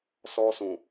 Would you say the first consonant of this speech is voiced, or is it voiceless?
voiceless